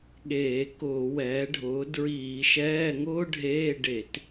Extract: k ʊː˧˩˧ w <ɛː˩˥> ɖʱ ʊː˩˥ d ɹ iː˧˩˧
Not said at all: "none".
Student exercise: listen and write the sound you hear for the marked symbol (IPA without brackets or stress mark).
ɛː˩˥